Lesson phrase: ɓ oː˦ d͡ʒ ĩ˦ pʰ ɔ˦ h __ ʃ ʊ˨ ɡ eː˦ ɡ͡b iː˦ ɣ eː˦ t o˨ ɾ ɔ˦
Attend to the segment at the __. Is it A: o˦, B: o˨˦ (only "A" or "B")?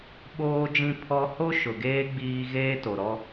A